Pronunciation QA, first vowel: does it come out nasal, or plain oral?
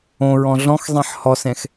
nasal